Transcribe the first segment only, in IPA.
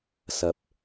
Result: s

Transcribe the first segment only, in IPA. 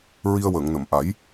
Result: ɹ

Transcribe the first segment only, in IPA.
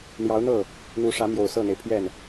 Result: n̪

